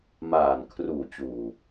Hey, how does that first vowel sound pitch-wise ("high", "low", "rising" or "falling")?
low